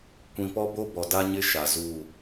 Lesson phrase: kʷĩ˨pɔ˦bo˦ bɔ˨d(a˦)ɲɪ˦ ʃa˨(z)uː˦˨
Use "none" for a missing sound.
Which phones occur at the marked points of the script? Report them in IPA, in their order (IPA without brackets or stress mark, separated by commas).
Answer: a˦, z